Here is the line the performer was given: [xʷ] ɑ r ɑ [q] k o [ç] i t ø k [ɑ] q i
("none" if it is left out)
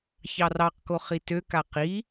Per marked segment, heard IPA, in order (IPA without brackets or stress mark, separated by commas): ç, q, χ, a